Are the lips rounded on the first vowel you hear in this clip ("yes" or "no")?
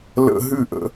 no